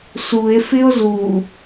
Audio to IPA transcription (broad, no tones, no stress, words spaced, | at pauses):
sue̯fɪo̯ zu